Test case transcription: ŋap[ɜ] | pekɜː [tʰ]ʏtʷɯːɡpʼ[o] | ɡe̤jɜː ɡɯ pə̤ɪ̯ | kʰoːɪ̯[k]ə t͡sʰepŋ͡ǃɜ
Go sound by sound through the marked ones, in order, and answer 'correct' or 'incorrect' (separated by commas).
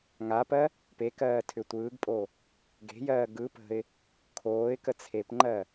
correct, correct, correct, correct